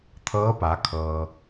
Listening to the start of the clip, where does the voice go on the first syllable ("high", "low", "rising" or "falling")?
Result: rising